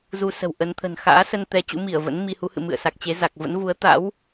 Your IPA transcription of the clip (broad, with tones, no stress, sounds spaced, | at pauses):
z u˧ s ə̤˨˩ w ʔ ə˨˦ n t̪ʰ ə̤˨˩ n x a̰ː˧˥ s ə˧ n t̪ ɛ˨˦ t͡ɕ ṵ˧˥ m i˧˩ ə̯ v ə̰˧˥ n m i˧ h u˨˦ h ɨ̰˧˨ m ɨ̰˧˨ ə̯ s a˨˩ k̚ t͡ɕ e˨˦ z a˨˩ k̚ v ə̰˧˥ n v u˨˦ ə̯ t̪ a̰˧˥ w